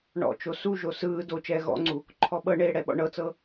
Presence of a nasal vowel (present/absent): absent